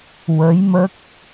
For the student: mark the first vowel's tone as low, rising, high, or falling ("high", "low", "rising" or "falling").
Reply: rising